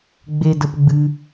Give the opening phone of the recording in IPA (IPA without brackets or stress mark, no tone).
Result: ɡ͡b